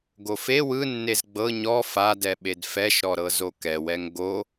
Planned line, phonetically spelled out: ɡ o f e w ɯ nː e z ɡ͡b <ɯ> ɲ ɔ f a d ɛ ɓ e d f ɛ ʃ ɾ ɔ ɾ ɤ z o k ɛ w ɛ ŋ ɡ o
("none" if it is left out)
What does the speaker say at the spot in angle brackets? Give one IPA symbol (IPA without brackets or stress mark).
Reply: ɤ